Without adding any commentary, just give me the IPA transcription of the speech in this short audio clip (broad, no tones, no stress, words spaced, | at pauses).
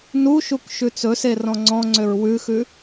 nuʃuk ʃʉt͡sɵse rɔ̃ŋ͡ǀɔ̃ŋ͡ǀøɹ wʉxʉ